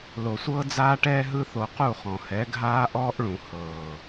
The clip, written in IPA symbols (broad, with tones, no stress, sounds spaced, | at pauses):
l o˨ sʷ ɤː˦ d͡z aː˦ ʈ ɛː˦ ɦ ɯ˦ θ o˧ q u˦˨ χ ɔ̃˨ h ɛ˨˦ ɡʱ aː˦ ʔ ɔː˦ ʔ ɭ ũ˨ h ɤː˨